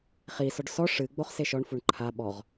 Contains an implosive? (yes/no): yes